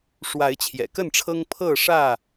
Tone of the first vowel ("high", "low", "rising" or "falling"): rising